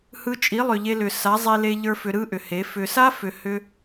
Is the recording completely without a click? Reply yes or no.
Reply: yes